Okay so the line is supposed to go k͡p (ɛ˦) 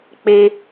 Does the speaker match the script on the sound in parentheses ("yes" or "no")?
no